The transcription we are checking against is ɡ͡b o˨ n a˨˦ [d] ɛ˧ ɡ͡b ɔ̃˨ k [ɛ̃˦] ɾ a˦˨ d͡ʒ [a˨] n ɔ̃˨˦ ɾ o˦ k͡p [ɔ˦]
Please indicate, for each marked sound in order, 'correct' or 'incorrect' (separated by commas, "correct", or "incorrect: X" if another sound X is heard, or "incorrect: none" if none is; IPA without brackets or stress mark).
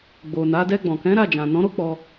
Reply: correct, incorrect: ɛ̃˨˦, incorrect: ã˨, incorrect: ɔ˧